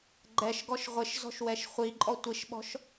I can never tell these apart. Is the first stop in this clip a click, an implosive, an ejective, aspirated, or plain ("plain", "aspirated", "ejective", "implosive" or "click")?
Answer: click